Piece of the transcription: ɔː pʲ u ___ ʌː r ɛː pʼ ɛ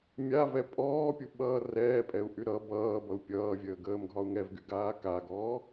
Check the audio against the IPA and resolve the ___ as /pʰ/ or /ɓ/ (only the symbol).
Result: ɓ